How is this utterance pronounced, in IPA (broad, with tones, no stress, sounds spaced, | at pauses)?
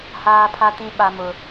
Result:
h aː˦ pʰ a˦ t ĩ˦ ɓ a˦ m ʊ˦